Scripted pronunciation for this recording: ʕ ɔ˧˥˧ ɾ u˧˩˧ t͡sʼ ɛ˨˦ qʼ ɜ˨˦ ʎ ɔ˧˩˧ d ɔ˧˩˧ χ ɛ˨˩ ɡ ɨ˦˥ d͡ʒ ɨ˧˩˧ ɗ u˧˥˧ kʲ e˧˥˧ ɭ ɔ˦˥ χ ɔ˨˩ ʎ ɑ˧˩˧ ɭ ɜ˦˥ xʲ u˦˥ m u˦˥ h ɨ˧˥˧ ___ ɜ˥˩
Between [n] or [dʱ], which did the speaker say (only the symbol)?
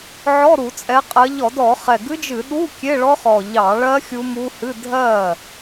dʱ